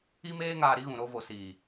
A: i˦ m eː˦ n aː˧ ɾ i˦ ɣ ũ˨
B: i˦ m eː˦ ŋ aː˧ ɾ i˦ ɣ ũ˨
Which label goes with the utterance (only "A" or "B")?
B